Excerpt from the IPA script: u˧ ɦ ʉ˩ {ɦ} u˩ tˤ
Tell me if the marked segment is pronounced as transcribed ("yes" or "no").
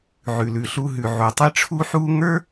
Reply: no